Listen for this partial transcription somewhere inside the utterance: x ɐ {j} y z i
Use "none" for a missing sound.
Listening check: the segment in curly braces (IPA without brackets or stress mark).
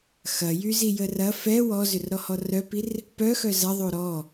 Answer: j